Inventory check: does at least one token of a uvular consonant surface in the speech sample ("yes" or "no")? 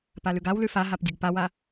no